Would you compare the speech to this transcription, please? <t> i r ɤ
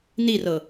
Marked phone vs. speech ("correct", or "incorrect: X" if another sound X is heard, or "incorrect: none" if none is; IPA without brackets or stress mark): incorrect: n